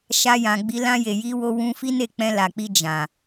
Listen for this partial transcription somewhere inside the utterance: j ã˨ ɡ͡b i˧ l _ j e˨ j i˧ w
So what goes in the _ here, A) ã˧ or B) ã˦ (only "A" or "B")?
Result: A